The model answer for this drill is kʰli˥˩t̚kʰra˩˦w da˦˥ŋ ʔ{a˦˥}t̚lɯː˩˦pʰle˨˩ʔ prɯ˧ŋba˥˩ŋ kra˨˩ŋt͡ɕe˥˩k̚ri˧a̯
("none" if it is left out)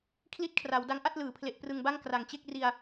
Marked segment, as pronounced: a˥˩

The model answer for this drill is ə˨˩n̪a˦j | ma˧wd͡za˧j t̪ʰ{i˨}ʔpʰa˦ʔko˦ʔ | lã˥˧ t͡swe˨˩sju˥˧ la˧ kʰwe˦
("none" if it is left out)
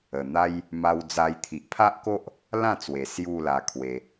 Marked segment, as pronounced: i˨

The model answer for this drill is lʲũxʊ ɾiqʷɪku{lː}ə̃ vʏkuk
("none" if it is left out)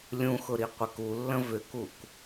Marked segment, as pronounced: lː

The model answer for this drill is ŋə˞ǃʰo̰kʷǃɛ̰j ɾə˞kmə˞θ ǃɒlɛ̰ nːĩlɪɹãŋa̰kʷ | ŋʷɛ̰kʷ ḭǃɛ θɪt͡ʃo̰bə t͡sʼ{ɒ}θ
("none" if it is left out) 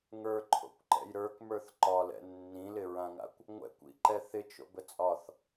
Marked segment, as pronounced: ɒ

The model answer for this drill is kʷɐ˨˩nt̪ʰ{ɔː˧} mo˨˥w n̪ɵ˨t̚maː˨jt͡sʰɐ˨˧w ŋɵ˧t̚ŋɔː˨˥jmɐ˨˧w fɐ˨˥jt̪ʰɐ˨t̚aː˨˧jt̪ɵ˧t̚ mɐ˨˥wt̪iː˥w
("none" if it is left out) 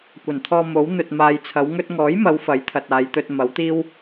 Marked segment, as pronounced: ɔː˧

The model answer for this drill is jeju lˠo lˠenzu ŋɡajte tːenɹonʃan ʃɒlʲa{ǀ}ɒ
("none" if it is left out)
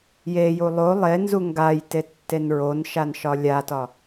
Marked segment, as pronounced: t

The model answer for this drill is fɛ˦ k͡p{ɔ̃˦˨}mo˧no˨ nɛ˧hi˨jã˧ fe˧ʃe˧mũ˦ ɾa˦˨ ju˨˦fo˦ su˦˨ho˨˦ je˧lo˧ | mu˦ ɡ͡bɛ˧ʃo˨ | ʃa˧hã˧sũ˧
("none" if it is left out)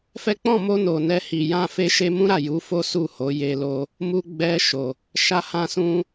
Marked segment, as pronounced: ɔ̃˦˨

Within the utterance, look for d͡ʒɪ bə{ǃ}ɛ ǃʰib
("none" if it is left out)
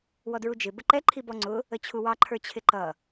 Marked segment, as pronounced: ǃ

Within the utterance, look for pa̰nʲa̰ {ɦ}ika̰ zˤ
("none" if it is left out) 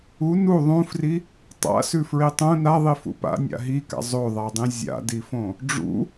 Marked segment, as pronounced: ɦ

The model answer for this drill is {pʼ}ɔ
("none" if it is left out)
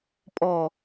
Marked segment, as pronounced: pʼ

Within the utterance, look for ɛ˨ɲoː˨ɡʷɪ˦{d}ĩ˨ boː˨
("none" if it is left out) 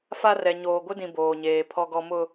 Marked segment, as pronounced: d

